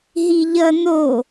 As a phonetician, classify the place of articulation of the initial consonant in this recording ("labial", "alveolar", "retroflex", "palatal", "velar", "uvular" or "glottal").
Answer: glottal